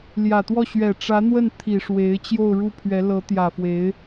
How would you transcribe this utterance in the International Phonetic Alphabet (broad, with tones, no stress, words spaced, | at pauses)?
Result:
ljä˨˩t̪wɔ˥˩ ɕɥɛ˨˩ʈ͡ʂä˧˥n̪wə˥˩n t̪ʰi˨˩ʂwe˧˥ɪ̯ t͡ɕjo˥˧ʊ̯ɻu˥˩pʰɥɛ˧˥ lɤ˧˥t̪jä˨˩fwe˧˥ɪ̯